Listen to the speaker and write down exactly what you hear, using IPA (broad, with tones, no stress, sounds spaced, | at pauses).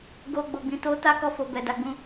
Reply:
ɡ o˨ ɡ͡b o˨ ɡ͡b ĩ˨ t o˧ t a˦ k ɔ˧ f o˨ b ɛ˨ d a˨ ɡ͡b ũ˧